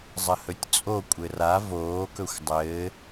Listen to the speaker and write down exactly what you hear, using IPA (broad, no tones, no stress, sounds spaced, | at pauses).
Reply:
zˤ ə h ɵ tʲ t͡sʼ o kʷʼ ɘ r a v oː k ɵ xʷ dˤ ɘː